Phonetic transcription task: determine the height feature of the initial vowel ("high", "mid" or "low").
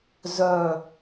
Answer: mid